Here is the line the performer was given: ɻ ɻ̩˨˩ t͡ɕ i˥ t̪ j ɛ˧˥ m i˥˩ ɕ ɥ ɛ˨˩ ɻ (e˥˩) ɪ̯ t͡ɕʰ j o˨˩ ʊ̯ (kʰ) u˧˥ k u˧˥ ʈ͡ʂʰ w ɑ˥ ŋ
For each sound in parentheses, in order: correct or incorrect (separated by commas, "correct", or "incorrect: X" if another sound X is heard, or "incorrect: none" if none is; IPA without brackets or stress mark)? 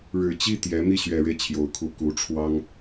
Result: incorrect: e˦, correct